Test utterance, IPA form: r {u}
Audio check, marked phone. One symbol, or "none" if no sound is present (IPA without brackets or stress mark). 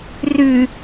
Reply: ʉ